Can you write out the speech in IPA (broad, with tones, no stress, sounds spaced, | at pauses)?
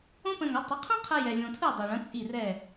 õ˥ p ə̃˧ ŋ œ˩˥ tˤ ə˩˥ qʰ õ˥ qʰ ɐ˧ j ɛ˧ lʲ õ˧ tʰ ɯ˥˩ dˤ ɯ˩ ɭ ɐ̃˩˥ t͡sʼ i˥˩ r ɛ˥˩